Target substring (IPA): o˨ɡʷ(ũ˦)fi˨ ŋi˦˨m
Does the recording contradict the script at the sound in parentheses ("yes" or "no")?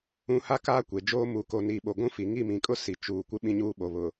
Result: no